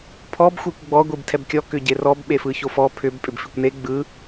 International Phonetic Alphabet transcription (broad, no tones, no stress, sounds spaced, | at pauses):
pʰ ɔ b xʷ e kʷ ɡ͡b ɔ ɡʷ i b tʰ ɛ b kʲ ɔ k ʏ ɟ e r ɔ b ɓ e f ɯ ç o f ɔ pʰ ʏ b pʼ ʏ b f i kʷ n e ɡ͡b ɯ